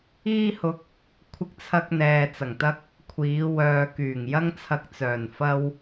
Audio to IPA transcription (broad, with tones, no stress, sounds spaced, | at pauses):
iː˧ h ʊ˨˥ k̚ | kʷʰ ɪ˧ k̚ t͡sʰ ɐ˧ k̚ n̪ ɛː˨ t͡s ɐ˨˩ ŋ t̪ ɐ˥ k̚ | kʷʰ iː˨˧ w œː˨ k yː˨˩ ŋ j ɐ˥ ŋ t͡sʰ ɐ˧ k̚ t͡s œː˨˩ n f ɐ˧ w